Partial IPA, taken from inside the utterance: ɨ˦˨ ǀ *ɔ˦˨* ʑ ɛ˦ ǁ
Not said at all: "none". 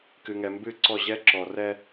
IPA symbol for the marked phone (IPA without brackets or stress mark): ɔ˦˨